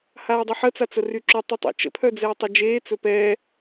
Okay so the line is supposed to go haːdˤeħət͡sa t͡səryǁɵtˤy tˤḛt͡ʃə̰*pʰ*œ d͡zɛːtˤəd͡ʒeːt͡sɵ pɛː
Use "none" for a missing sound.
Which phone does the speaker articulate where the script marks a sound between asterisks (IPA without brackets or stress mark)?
pʰ